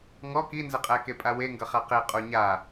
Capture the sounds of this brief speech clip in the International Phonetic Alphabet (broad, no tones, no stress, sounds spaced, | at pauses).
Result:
ŋ ɔ k i n z ə qʼ æ k e pʼ a w e ŋ ɡ ʌ χ a q e qʼ o ɲ a